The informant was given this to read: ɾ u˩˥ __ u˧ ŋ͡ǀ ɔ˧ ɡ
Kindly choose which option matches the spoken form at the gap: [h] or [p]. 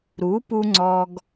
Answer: p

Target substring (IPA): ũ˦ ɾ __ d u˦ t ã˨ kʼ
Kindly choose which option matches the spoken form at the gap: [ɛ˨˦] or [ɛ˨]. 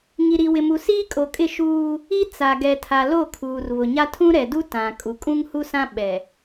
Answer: ɛ˨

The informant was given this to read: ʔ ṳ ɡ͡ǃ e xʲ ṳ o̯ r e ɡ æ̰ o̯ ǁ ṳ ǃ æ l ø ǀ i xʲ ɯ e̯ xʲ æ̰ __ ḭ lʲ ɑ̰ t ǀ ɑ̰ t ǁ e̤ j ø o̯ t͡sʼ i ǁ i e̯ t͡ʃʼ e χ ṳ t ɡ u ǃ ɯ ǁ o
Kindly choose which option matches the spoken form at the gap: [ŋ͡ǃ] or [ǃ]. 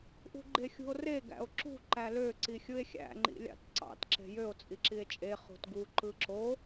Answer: ŋ͡ǃ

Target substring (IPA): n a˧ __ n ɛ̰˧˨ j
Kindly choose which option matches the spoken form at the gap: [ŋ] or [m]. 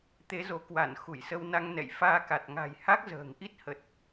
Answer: ŋ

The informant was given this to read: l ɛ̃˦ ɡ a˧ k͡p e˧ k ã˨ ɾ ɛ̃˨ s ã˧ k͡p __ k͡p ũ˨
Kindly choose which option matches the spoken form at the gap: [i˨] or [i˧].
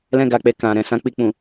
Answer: i˨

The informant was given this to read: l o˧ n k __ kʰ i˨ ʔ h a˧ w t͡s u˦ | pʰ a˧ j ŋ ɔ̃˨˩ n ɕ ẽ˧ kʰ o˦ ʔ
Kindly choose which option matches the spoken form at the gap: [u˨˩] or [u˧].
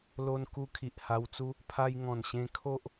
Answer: u˧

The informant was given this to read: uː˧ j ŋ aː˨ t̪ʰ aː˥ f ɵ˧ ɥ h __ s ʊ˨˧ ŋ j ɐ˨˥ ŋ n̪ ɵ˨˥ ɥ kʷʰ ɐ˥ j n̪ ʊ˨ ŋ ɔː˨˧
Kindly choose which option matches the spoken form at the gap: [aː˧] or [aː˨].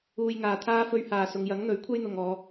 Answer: aː˨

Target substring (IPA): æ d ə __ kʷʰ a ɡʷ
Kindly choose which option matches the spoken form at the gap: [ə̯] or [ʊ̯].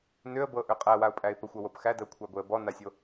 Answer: ʊ̯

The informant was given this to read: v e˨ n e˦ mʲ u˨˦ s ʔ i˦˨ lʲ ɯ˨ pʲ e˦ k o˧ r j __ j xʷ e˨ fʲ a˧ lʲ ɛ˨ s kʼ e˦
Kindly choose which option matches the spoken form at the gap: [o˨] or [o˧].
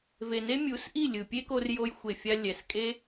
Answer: o˧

